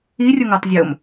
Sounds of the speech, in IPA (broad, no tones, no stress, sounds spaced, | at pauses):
i rʲ ʊ ŋ o tˤ zʲ o m